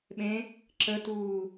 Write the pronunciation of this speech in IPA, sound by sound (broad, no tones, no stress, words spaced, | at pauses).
ɓẽ | ǁətuː